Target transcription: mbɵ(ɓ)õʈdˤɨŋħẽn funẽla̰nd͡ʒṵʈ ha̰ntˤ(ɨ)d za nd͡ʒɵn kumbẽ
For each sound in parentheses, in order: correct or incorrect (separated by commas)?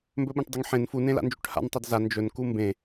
correct, correct